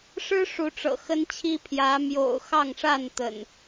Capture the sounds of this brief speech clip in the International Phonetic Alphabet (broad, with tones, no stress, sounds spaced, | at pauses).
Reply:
ʂ ɻ̩˦ ʂ u˨˦ ʈ͡ʂ ɤ̰˨˩ x ə˦ n t͡ɕʰ i˦ pʰ j ä˨˦ m j o̰˨˩ ʊ̯ x ɑ˥˨ ŋ ʂ a˥˨ n t̪ ə̰˨˩ n